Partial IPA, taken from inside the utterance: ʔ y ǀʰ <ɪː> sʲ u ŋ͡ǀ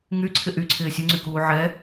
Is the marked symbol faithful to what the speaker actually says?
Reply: yes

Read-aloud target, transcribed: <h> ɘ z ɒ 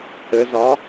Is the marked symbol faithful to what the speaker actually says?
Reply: yes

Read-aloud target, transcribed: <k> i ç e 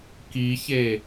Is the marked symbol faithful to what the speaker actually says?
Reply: yes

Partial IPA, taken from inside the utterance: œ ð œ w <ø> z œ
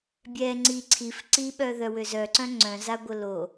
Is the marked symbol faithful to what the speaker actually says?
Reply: yes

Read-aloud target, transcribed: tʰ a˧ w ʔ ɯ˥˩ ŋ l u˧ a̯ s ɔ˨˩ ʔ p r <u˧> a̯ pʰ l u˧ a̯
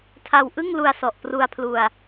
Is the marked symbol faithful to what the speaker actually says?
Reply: yes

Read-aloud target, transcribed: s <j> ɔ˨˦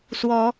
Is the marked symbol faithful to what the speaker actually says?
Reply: no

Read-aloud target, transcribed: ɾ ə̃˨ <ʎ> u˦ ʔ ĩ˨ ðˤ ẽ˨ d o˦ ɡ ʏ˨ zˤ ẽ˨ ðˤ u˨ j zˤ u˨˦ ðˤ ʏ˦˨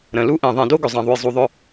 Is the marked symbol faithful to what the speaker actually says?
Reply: no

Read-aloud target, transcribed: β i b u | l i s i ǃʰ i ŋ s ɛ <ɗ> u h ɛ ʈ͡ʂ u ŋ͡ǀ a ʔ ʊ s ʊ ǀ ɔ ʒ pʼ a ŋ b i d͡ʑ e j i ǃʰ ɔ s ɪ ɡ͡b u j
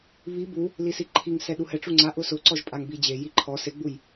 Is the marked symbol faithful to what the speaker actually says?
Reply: yes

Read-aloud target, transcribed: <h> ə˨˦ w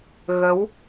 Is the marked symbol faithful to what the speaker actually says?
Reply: no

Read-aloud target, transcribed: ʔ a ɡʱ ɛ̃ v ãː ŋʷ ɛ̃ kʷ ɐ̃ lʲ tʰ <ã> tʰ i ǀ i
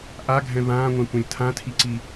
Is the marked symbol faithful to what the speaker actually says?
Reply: yes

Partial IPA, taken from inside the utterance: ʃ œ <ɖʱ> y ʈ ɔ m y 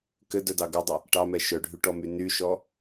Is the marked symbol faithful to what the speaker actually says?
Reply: yes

